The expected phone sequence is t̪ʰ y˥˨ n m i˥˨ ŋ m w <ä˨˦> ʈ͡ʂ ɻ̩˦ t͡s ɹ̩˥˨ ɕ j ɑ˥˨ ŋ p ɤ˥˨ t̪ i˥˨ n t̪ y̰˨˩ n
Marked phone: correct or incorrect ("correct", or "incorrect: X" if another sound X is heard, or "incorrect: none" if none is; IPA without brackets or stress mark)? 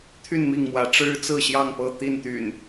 correct